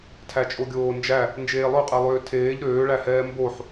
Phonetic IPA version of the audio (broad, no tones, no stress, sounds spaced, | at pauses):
tʰ æ t͡ʃʼ o ɡʲ oː n d͡ʒ æ | n d͡ʒ eː lˠ ø qʼ ɛ lˠ øː tʰ eː ʎ ɾ øː ɭ æ h ɛː m b o ħ